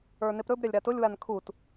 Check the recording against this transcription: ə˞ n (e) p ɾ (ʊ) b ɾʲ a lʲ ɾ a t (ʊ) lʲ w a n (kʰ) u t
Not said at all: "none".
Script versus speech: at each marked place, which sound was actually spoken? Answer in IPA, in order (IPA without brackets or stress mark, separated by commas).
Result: e, ɵ, ʊ, kʰ